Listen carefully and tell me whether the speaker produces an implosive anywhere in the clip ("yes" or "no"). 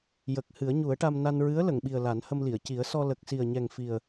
yes